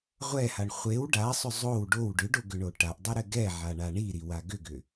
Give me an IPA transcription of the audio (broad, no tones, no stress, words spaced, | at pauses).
ʁʷɛhaɳ χʷew ɖasˤʏ zˤow ɖow ɖʏɖoɡʏɳo ʈaʔdˤɘɾɘ ɡɛʕaɳa ɳiɾiwa ɡʏɡʏ